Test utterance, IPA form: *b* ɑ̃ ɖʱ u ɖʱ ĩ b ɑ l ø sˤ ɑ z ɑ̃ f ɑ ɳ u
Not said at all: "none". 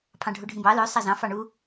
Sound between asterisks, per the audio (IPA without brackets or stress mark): pʰ